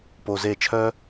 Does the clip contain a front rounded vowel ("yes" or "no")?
yes